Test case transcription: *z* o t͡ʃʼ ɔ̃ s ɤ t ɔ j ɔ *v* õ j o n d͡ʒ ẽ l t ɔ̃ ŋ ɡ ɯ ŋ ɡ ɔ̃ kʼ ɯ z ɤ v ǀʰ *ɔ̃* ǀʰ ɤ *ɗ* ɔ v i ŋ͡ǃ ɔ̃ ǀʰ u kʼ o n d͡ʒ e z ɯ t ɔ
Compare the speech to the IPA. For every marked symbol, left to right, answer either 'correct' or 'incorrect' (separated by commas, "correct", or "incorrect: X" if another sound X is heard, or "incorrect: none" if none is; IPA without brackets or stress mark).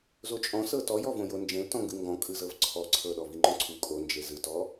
correct, correct, incorrect: ɔ, correct